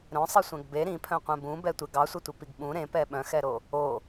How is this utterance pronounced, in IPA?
ɾ œ̃ sˤ i sʷ ɛ̃ ɡ b e ɾ ĩ pʰ œ̃ qʷ ɛ̃ b ũ b ɛ tʷ e ɡ ɑ sʷ ɛ tʷ e p i ɡ ɓ ũ ɾ ẽ p ɛ ɓ œ̃ x ɛ ɾ o | o

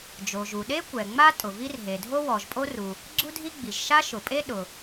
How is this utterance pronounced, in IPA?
d͡ʒ o˩ ʒ u˩ ɗ e˥ kʷ ɛ˩ ŋ͡m a˥ tʼ ʊ˩ v i˥ r ɦ e˩ dʱ o˥ w ɔ˩ ʒ pʼ o˥ r u˩ | ɡ͡ǀ u˥ dʱ i˥ ɡ͡b i˩ ʒ ʃ a˥ ʃ ʊ˩ pʼ e˥ ɗ ʊ˩

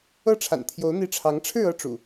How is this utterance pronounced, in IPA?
ɤ˥˨ ʈ͡ʂʰ a̰˨˩ n t̪ʰ j o˨˦ ʊ̯ n̪ i˨˦ ʈ͡ʂʰ ɑ˨˦ ŋ ʈ͡ʂʰ ɻ̩˥˨ ɤ˦ ʈ͡ʂ ṵ˨˩

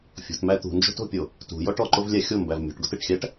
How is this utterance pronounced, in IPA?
fʲ o̤ t m æ t̪ ṳ n d͡ʒ o̤ t o̤ pʲ o | t ṳ j ɔ ʈ ɔ ǃ o v lʲ æ xʲ o m b æ v mʲ o̤ ʈ ɡ o t e ʈ xʲ æ ʈ

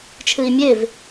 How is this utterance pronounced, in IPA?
t͡ʃʰ ɨ i̯ mʲ e v

